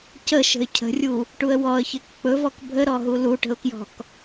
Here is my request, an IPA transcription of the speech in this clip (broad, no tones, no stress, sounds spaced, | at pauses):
c ə ʃ ə̤ ɪ̯ cʰ ə̤ rʲ u | ʈ u ə̯ w ɔ ə̯ ç e k k͡p ɵ v ɔ k bʱ ə ɾ ɔ ɦ u l u ʈ ə̤ ʊ̯ k j ɔ̤ k